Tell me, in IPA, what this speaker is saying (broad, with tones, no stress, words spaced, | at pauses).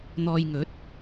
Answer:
n̪ɔː˧jŋɵ˨˥t̚